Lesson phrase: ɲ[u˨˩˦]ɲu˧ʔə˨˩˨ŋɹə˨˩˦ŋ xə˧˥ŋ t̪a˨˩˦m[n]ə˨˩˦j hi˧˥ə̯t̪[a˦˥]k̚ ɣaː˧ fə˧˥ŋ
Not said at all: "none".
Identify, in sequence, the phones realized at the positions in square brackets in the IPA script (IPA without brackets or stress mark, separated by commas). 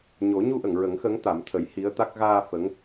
o˨˩˦, t̪ʰ, a˦˥